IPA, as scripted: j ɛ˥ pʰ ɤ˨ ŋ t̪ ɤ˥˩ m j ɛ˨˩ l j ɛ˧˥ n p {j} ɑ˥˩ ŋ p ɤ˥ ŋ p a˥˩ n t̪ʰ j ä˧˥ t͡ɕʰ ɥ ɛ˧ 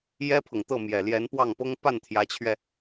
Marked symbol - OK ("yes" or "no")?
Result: no